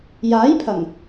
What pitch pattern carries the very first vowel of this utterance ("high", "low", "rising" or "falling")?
rising